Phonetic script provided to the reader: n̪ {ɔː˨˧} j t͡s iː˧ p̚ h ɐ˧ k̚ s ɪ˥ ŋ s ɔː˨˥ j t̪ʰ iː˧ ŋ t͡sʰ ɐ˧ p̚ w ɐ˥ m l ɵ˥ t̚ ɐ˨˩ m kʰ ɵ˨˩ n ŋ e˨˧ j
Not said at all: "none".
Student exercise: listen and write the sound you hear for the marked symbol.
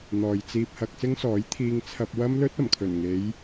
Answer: ɔː˨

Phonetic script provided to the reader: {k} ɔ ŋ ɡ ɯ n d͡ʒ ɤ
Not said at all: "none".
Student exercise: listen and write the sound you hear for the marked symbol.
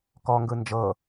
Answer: k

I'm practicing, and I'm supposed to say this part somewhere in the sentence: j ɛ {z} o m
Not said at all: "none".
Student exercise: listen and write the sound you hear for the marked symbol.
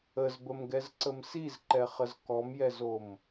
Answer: z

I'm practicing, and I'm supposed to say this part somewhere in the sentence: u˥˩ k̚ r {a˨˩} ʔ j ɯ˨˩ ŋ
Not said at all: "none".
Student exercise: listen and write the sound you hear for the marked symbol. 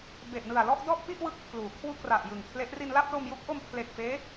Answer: a˨˩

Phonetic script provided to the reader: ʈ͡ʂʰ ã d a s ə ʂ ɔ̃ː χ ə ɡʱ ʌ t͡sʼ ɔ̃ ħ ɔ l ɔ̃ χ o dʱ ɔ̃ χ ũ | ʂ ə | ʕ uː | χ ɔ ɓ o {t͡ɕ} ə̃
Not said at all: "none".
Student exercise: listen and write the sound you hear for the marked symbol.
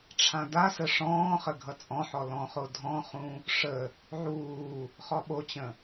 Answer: t͡ɕ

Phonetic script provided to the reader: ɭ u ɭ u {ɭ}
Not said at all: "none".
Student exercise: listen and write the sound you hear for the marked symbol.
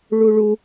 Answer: none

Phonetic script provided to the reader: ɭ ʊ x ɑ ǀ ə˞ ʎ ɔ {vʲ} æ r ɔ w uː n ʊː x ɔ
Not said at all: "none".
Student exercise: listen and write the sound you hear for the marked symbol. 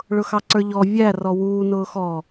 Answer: vʲ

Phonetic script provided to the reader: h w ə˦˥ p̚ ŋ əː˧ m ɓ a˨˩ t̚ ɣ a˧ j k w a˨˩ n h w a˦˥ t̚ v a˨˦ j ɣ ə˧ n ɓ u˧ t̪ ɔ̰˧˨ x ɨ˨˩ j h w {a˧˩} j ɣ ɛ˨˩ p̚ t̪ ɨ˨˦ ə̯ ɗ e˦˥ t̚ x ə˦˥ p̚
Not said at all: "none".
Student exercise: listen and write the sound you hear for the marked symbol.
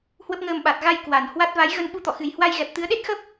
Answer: a˧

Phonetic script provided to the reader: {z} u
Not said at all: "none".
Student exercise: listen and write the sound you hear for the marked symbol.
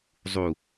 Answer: zˤ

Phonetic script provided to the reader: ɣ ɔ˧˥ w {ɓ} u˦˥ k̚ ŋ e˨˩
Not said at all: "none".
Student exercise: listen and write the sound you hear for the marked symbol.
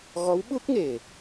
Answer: ɓ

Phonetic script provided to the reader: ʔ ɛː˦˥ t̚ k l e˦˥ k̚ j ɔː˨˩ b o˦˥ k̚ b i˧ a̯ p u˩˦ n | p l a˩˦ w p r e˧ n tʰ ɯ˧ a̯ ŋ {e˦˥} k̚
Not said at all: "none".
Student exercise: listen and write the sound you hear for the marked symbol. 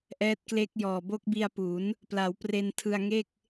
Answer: e˥˩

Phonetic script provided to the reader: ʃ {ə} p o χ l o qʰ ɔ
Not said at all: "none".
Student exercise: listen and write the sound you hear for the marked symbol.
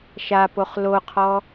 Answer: a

